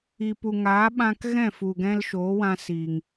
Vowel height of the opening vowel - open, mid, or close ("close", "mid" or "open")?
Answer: close